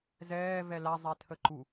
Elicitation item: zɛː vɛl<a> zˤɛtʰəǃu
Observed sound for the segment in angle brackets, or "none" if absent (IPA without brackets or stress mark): a